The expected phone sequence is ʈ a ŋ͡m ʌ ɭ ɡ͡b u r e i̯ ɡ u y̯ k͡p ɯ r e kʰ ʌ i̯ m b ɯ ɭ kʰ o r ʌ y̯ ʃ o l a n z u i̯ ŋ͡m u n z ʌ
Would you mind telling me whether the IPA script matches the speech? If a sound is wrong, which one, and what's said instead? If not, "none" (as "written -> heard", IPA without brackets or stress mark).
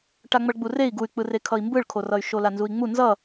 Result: none